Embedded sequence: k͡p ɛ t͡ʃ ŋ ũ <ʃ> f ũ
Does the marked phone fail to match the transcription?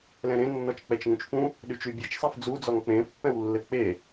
yes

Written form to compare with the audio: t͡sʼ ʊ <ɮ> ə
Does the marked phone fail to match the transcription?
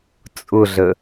no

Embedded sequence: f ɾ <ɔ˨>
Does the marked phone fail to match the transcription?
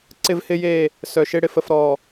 no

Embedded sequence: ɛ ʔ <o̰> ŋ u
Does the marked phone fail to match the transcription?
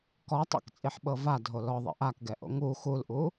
no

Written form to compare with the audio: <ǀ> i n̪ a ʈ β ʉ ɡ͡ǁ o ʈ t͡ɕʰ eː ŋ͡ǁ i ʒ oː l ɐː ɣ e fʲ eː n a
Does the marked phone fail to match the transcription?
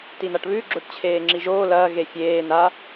yes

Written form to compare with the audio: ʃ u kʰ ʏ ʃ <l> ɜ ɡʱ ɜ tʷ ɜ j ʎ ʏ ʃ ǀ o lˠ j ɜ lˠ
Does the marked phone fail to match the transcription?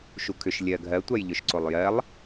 yes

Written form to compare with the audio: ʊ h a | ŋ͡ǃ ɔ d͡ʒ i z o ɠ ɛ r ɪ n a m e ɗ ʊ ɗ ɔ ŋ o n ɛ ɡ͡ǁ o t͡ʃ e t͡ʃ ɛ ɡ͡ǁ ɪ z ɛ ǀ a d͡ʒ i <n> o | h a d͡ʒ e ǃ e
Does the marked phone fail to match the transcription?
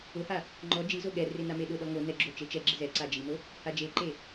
no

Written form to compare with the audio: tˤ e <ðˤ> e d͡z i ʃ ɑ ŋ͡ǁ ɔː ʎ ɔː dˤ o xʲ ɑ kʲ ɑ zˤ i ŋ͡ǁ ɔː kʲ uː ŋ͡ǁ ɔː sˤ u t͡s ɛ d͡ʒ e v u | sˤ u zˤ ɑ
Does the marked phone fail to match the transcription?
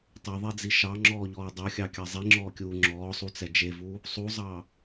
no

